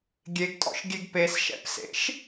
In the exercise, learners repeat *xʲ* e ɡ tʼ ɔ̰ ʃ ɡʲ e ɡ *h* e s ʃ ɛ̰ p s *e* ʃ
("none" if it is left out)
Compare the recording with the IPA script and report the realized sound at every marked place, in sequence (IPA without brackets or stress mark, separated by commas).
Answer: ɡʲ, p, ḛ